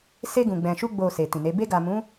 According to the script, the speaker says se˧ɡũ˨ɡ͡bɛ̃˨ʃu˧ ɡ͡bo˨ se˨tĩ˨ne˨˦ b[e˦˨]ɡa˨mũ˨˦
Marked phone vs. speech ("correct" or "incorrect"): incorrect